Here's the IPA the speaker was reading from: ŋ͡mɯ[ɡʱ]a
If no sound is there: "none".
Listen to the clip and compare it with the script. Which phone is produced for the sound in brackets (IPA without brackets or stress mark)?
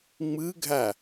ɡʱ